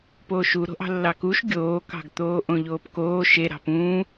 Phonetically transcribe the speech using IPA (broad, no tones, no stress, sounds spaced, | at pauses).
p oː ʃ u ɾ o̤ ʔ ɑ̤ lː ɑ k u ʃ ɡʲ oː k ɑ̤ ɡ t̪ oː ʔ õ ʎ oː p k oː ʃ e ɾ ɑ̤ p ũː